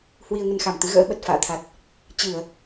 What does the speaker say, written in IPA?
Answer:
hwi˧ə̯ŋə˧nxa˧˩mt̪ɨ˨˦ ɣə̰ː˧˥ɓə˨˩t̚ fa̰ː˧˨t̪ʰa˨˩t̚ | t͡ɕɨ˧˩˨ə̯

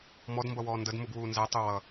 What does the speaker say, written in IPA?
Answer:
mɔdmbʌwɔː ndəd muɡwuːnzɛ tˤuwʌ

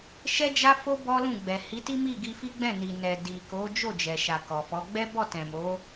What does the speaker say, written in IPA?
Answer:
ʃɛ˦d͡ʒa˦fo˦ bɔ˦lũ˦˨ɡ͡bɛ˨ hi˨˦ti˦ mi˦˨ɡi˧fi˦ ɡ͡bɛ̃˦˨ni˨nɛ˨ di˨ko˨˦ d͡ʒo˦˨ d͡ʒɛ˨ʃa˨ kɔ˨fɔ˨˦ ɡ͡bɛ˦bɔ˦˨tɛ̃˨mo˨˦

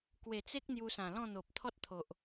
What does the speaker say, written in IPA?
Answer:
kwe˨˩t͡se˦k̚ n̪ju˧sã˨˩lɔ̃˥˧n̪o˨p̚ t̪ʰɔ˦t̚t̪ʰo˨ʔ

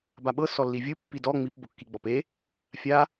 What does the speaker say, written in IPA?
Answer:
baɓɤ sɔlːivʲɯ pːidɔ ŋ͡mip bokːiɡ͡bɔpe | fʲa

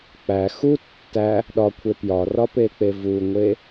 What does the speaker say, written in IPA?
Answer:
k͡pæ xu tːæ | ɗɒkʷʰe pjɒrɒpek͡pe vuŋʷe

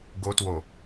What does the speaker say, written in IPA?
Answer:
ɡo two

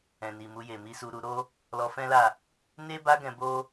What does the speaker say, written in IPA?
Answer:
ɛ̃˨ni˨mu˧je˨ mi˧su˧ ɾu˧ɾo˦ | lɔ˧fɛ̃˦la˦˨ | ne˦ba˦ɡɛ̃˧ bo˦

